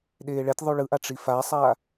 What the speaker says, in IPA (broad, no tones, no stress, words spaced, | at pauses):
ɗeːɭɛtʲ ðˤuɭɯʔa ʈ͡ʂifasˤa